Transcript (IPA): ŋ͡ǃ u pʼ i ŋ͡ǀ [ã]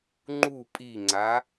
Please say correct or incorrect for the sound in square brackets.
incorrect